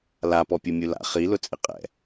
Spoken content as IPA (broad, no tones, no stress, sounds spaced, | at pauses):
l a p ɔ pʲ u mʲ u l a̰ χ i l ʊ t͡sʼ ɪ qʼ ɛ̰